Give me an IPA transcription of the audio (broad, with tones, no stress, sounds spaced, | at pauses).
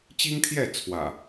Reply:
t͡ɕ i˦ ŋ t̪ʰ j ɛ˥˨ t͡sʰ w ä̰˨˩